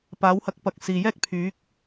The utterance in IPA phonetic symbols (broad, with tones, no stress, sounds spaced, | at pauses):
p aː˨˥ w h ɐ˧ k̚ p ɐ˨˥ k̚ s iː˨ j ɛː˥ k̚ pʰ yː˨˥ k̚